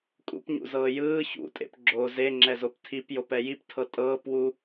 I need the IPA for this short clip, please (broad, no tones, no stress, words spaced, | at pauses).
kʼṵpɲṵzɤː jɯː çṵtʼḛp ɡ͡ǁo zeŋ͡ǁɛzop tʰipjopɛ jiptʰɤ tʼɤːpwu